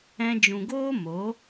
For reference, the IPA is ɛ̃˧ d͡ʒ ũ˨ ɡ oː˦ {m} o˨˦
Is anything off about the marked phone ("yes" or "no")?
no